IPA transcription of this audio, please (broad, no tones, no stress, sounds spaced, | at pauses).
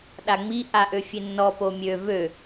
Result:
ɗ a ŋ͡m i ʔ a ʔ ø fʲ e nː ɔ p o mʲ ø v ø